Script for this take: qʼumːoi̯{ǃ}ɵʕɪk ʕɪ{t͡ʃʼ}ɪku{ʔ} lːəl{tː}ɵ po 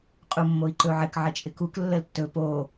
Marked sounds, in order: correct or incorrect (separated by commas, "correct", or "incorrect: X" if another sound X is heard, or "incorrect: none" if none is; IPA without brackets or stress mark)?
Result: correct, correct, incorrect: k, correct